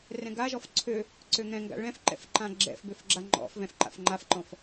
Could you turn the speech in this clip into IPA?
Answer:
r ɛ̃ ɡ a ʒ ɔ f ǀʰ ø | ǀ ø ŋ ɛ̃ ŋ ɡ a̰ ɭ ɛ̃ f ǃ ɛ̰ f ǃ ã ɡ͡ǁ ɛ̰ f b ø f ɡ͡ǁ a ŋ͡ǃ ɔ̰ f v ɛ̃ f ǃ a̰ f ŋ͡ǃ a f ǃ ɔ̃ f

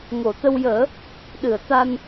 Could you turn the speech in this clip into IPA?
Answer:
ŋ o˨˩˨ t̪ ə˧ w j əː˨˩˦ | ɗ ɨ˨˩˨ ə̯ t̪ a˧ n

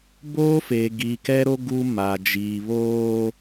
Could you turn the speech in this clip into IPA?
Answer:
b oː˦ f eː˨ ɡ iː˨ k ɛ˦ ɾ o˦ ɡ u˦ m a˨ d͡ʒ iː˨ β oː˦

